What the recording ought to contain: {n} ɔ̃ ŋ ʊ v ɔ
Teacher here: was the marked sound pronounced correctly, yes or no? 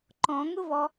no